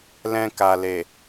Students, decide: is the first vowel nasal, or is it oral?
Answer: nasal